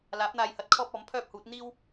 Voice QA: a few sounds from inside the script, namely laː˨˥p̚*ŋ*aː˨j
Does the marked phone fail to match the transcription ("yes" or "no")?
yes